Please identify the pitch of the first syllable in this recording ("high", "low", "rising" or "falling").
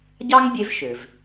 high